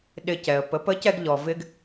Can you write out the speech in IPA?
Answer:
ɗɪ˧cɛ˨ə̯pə˨˦p ə˨˦cɛ˧ɡʎɔ˨ vɪ˦ɡ

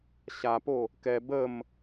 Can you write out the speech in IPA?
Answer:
ɕapo | kɛ bəm

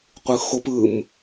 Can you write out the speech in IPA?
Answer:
qʷɯxop ɯm

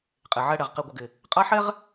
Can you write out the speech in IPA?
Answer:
qʼe˨ʕɛ˦ɽɛ˨ʁ qi˨ɡʷə˨ɡɪ˨ | qʼa˦ħɛ˦ʁ

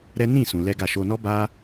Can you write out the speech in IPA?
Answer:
ɾɛ˦ nĩ˦˨ sũ˧lɛ˦ɡa˦˨ ʃo˧nɔ˦ ba˦

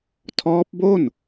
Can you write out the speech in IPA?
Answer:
tʰɔː˦˥p̚bo˥˩n

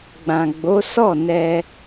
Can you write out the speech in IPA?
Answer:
ɡ͡bã˨ɡ͡bo˨˦ sɔ˦˨nɛ˧

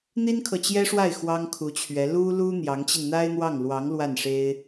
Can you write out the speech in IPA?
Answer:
n̪i˥nkʰɤ˨t͡ɕjɛ˥ʂwa˥˩ɪ̯ xwɑ˥ŋkʰu˧˥t͡ɕʰɥɛ˧˥ lu˥lu˥ n̪jɑ˧˥ŋt͡ɕi˧nn̪a˥ɪ̯n̪wɑ˥˩ŋ lwɑ˧˥ŋ lwa˥˩nʂe˥ɪ̯

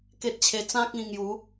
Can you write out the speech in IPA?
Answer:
ke˦t̚t͡ɕʰe˧ t͡sã˦k̚ĩ˧ŋju˨˦

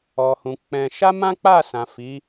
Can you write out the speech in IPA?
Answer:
ɔ˨hũ˨ k͡pɛ̃˧ ʃa˦mã˦k͡pa˦˨sã˨ fi˨˦

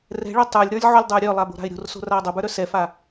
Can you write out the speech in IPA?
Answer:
rɛ̤ɭœ tˤə˞lʲɾə˞lʲʕolʲdˤə˞ ɾʲœlˠabo̤ɾa̤ɪ̯ ɾʲo̤rso̤raə̯ dˤobə˞ɾœ sɛfa

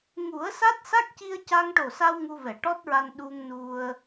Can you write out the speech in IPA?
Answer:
ŋu˨˩˦ə̯sa˦˥t̚ sa˦˥k̚ci˧ə̯ ca˧ŋʈo˨˩sa˧w ŋu˧vɛ˨˩˨ʈɔ˦˥t̚ɹa˧n ɗu˧ŋnu˧ə̯

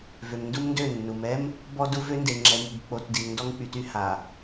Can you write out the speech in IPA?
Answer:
vø˨mndu˦mndø˦˨nːu˨m ɛ˦m | bɔ˦du˦vø˦nde˨ ŋ͡ǁɛ˨mu˨bk͡po˨tdi˨ŋ ndɔ˦ŋk͡py˨ty˦ ha˨

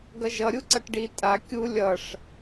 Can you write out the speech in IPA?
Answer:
ɡʌʒʌ ɾʲuǀʌʈɖi tʼa kʲu lʲʌʂ

